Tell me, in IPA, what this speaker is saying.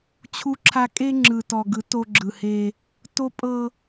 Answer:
t͡ɕʰu˦ǁʰa˦ kʼe˦ŋ͡ǁɯ˨tɔ˨ɡɯ˨˦ to˦ɡ͡ǁɯ˨he˦ | to˦pʼɤ˦

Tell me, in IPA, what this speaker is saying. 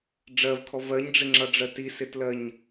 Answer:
ɖ͡ʐɜvkʰɔ vɜɲɖ͡ʐɪŋ͡ǁʌɖ͡ʐɜ tisɪtlɜɲ

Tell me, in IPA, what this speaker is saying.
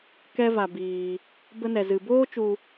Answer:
kɛ˦va˧biː˧ | bə˦nɛ˧ zɨ˧ boː˦t͡ʃu˧

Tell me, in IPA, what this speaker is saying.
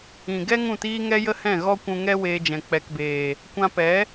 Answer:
ĩ˨ɡɛ˦ ŋũ˦˨tiː˦ ŋɛ˦jə˦hɛ̃˦˨ ɣɔ˧kʷũ˨ŋɛ˧ weː˧d͡ʒɛ̃˨ k͡pɛ˨kbeː˨ | kʷã˧pɛ˨˦

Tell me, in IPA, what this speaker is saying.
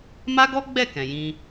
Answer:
ma˦ɡɔ˦ɡ͡bɛ˦˨ kɛ̃˨jĩ˧

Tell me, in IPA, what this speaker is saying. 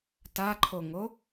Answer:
taǃʰoŋo

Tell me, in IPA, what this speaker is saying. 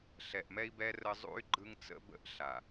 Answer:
ɬɛ˨ʔmɛ˦i̯bɛ˦ rə˦ zˤṵ˦y̯ɡ͡ǃɯ˦ŋt͡sə̰˦bə̰˦ʔ ɬa˨

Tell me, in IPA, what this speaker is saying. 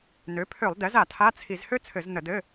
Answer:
nø˩˥pʰø˧˩˧lˠdɛ˩˥z a˧˩˧tʰa˧˥˧t͡sʰi˧˩˧z hø˥ t͡sʰɘ˧˩˧znə˧˩˧dɘ˧˥˧

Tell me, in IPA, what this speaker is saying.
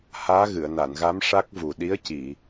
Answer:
haː˧˥ɣɨ˨˩˨ə̯ na˨˩˨nɣa˧˥m ʂa˦˥k̚vu˨˩ ɗi˧˥ə̯ci˨˩˨

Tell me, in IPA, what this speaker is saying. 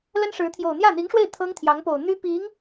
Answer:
lə˥nʂɻ̩˧˥ t̪ʰjo˨˩ʊ̯n̪jä˥˩n̪i˧˥ŋʂwe˥˩ɪ̯ t̪ʰɤ˥ŋt̪ʰjɑ˧˥ŋpo˨˩ʊ̯ n̪y˥pi˧˥ŋ

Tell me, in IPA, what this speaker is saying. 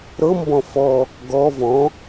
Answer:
ɾɤ mbɔ̃fɔ | ɡɔ vɔ̃

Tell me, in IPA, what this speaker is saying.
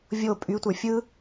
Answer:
vʲo pʼytʷə˞ fʲɯ

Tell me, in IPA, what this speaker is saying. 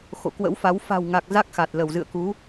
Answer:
xo̰˧˨kwə̰˧˥wfa˨˦w fa̤˨˩wŋa˨˩k̚ za˦˥k̚xa˨˩t̚ lə˧˩wzɨ̰˧˨ə̯ku˨˦

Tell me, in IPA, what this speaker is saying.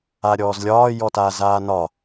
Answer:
aɾʲɔːzlʲɒː jɔtaːzaːnɒ

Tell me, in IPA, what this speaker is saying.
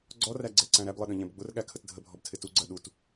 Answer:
ɡ͡ǀɔræɡ͡ǀɛǀæ̃ ɾæblˠɪɗə̃ʎɛ̃b ɡ͡bʊrɠækʰət dʱəbʱɔbtʰɪ tuɡ͡ǀɜ ɗut

